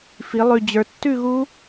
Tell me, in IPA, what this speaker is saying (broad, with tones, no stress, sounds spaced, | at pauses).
f i˩˧ lˠ ʉ˨˩ d͡ʑ ə˞˩˧ tː ʉ˥˨ ɣ u˦˥